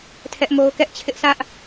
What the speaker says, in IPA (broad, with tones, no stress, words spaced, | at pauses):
tʰɛ˦ʔmo˦ʊ̯ kɛ˦ʔt͡ɕʰɪ˦ʔsʰä˦ʔ